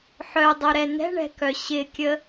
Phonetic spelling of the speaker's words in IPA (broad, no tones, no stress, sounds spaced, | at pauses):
ħ œ dˤ o ɾ ɛ n ɛ̤ ɳ ɛ̤ k œ ɕ ɪ kʲ ə